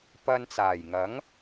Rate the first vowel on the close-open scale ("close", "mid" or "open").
open